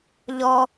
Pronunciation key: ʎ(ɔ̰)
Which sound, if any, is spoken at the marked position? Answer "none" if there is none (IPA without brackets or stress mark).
ɔ